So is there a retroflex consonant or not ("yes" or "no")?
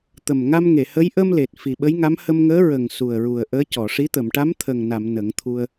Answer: yes